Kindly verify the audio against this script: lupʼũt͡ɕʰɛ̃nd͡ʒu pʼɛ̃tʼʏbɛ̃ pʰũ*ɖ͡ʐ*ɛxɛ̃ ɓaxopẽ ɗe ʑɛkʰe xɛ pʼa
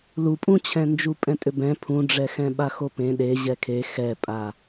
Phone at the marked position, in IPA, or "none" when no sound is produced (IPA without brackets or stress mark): ɖ͡ʐ